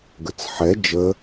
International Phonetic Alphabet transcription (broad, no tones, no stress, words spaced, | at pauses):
ɡət͡sħɛ d͡ʒə